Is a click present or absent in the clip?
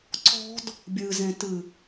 present